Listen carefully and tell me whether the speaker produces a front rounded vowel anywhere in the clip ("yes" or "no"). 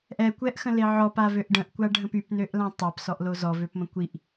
yes